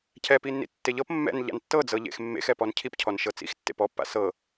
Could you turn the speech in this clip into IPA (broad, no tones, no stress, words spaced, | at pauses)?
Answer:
cʰɛpinːḭ tːeʎɤp mːɛ̰n ʎa̰ntːɤd͡zɤʎḛx mːḛx ɛpɔncʰip cʰɔnʃɤt͡sḭxtːḛp ɔpːa̰ sɤ